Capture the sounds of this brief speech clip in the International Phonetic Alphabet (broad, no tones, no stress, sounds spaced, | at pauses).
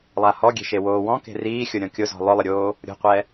lˠ a h ɔ ɡʲ e̤ ʃ e w oː w ɔ̃ k e̤ r iː xʲ ʊ ɾʲ ɔ̃ kʲ ʊ z ɔ̤ lˠ ʊ lˠ ɪ ɾʲ oː | ɾʲ o̤ qʷ ɛ